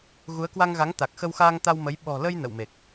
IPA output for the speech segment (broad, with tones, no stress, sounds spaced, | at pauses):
ɣ u˨˦ ə̯ k w a˧ ŋ ɣ a˨˦ ŋ t̪ a˨˩ k̚ x ə˧ w x aː˧ ŋ t̪ a˧ w m ə˨˦ j ɓ ɔ̤˨˩ l ə˧ j n ə̰˧˨ w m e˨˩ k̚